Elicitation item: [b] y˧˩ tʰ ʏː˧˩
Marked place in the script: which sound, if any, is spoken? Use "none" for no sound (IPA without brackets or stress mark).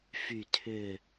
f